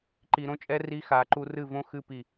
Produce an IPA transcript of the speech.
ǃ i˨ ɾ õ˦ t͡ʃʼ ɛ˦ r i˦ x a˨˦ ǃ u˦ r ɨ˦˨ v õ˦ x ɨ˦˨ p i˦˨

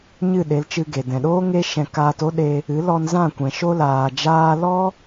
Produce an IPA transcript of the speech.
ɲ ɨ˦˨ ɗ e˨˦ l t͡ʃ ɨ˧ ɡ e˨ d ɛ̃˨ ɗ oː˦ ŋ e˦ ʃ ɛ̃˧ k aː˧ t o˦ ɗ e˧ | ɨ˨˦ l ɔ˧ n z ã˦˨ kʷ ɛ̃˨ ʃ o˧ l aː˨ d͡ʒ aː˧ l ɔ˦

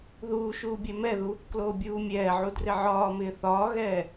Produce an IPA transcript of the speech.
ð uː ʃ uː bʲ ɛ m ɛ ð u | k l oː bʲ uː mʲ ɛː ʕ u d r ɪ ʕ ɒː m ɪː θ ɒː ɣ ɛː

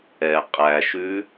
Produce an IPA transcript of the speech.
ɛ qʼ æ ʃ ʉ

